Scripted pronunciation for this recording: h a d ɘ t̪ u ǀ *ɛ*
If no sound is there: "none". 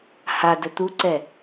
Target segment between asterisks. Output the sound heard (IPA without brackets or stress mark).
ɛ